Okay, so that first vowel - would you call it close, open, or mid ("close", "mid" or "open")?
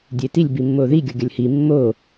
mid